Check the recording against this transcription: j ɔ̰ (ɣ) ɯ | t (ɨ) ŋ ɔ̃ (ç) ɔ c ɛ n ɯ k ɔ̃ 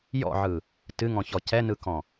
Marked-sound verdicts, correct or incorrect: incorrect, correct, correct

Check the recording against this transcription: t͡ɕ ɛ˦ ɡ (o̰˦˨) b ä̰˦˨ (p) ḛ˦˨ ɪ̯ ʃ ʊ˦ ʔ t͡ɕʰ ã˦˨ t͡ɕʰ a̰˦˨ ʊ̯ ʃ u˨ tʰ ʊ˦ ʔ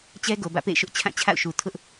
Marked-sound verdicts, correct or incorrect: incorrect, correct

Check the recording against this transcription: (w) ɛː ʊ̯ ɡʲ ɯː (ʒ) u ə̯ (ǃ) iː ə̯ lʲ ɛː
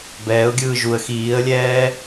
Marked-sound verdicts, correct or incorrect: incorrect, correct, incorrect

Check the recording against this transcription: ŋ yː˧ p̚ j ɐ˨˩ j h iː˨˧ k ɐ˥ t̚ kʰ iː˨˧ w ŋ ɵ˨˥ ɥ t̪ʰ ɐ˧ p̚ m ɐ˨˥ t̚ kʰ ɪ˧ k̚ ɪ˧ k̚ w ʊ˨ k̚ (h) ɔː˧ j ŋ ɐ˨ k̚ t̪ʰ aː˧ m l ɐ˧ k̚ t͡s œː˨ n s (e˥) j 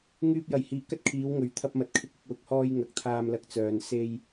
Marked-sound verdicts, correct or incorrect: correct, incorrect

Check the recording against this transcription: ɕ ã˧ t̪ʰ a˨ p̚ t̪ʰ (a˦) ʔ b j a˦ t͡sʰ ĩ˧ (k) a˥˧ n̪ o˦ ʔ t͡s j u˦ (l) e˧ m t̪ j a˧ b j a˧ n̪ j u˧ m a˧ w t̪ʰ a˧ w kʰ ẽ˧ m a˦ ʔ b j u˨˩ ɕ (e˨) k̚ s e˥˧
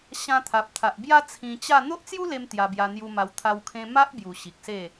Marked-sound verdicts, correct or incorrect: incorrect, incorrect, correct, incorrect

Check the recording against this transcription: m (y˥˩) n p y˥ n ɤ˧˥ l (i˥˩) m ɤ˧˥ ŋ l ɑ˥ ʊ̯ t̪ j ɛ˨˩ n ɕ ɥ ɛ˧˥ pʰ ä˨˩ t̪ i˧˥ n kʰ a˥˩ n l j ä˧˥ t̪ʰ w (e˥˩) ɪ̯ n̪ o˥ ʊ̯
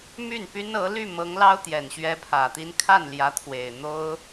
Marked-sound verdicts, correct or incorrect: correct, incorrect, incorrect

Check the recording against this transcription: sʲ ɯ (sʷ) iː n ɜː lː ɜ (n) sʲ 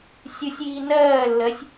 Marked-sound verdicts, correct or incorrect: incorrect, incorrect

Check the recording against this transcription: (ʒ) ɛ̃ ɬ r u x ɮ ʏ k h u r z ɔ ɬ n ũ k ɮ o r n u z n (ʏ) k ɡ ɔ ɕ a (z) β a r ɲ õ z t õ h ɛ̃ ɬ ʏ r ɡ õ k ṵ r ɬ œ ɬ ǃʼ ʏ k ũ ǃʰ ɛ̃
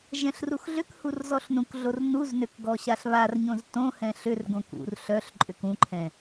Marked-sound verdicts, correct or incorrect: correct, correct, incorrect

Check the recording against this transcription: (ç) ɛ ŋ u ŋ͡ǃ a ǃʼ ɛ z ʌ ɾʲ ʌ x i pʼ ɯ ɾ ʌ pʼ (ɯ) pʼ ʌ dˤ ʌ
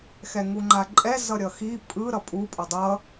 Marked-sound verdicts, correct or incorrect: incorrect, incorrect

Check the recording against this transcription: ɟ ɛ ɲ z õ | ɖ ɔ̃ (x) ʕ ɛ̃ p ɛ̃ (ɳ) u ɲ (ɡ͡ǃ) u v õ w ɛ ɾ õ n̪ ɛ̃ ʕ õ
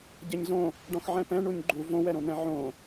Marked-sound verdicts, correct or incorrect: correct, correct, correct

